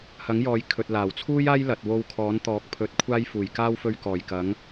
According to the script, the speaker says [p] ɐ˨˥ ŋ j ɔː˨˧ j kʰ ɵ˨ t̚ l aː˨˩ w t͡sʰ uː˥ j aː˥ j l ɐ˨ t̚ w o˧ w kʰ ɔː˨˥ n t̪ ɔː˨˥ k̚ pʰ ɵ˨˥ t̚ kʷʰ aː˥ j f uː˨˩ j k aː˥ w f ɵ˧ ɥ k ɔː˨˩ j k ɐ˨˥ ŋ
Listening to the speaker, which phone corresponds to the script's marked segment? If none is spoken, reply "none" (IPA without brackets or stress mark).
h